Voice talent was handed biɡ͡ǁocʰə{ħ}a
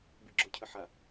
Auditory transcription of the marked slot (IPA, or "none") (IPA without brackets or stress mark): ħ